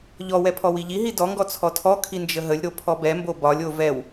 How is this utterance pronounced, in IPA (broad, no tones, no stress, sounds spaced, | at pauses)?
ʎ ɔ w ɛ pʰ ɔ w i ʎ i ɦ i d ɔ ŋ ɡ ɔ t͡sʰ ɔ tʰ ɔ kʰ i n d͡ʒ ə ɦ ə lʲ ɾ o pʰ ɔ b ɛ m b o b ɒ lʲ o v ɛ w